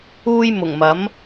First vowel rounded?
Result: yes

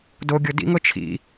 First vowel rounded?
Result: yes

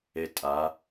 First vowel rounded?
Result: no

